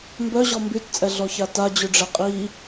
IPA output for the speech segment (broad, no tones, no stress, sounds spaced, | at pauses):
m b œ ʑ ɔ m b y t t͡sʼ ɛ ɮ ɔ ç a t a d͡ʑ y ɖ͡ʐ ɛ qʼ i